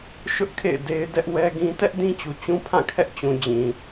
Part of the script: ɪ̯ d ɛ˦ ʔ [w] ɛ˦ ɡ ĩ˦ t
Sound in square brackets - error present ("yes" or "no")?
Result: no